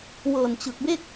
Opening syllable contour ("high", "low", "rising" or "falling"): low